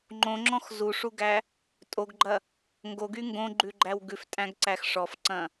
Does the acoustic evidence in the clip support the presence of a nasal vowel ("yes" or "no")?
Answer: yes